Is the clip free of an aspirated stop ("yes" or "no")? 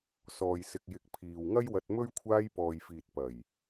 no